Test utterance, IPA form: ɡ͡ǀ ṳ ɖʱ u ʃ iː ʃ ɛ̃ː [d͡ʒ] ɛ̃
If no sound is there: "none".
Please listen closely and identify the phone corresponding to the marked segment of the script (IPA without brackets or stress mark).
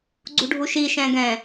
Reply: ɡ